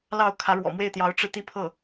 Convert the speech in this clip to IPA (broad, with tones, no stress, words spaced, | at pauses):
lɑ˥˩ʊ̯kʰä˧˥ɻwɔ̰˨˩ mwe˥˩ɪ̯t̪jɑ˧˥ʊ̯ʈ͡ʂɻ̩˧ t̪i˥˧pʰɤ˥˩